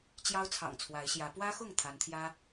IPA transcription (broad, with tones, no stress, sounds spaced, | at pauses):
t͡ɕ j ɑ˦ ʊ̯ t͡sʰ ɑ̰˨˩ ŋ t͡sʰ w a˨˦ ɪ̯ ɕ j ä˨˦ p w ä˦ x ʊ˥˨ ŋ t̪ʰ a˨˦ n t̪ʰ j ä˦